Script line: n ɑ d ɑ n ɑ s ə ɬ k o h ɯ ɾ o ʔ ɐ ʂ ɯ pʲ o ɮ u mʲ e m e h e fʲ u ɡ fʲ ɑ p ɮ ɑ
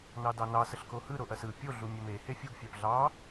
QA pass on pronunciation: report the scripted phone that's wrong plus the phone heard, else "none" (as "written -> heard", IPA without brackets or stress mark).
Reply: ʂ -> s